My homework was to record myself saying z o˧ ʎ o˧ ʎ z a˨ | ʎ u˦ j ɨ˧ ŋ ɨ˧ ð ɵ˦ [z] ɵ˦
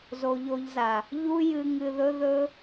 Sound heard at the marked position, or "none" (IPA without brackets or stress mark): ð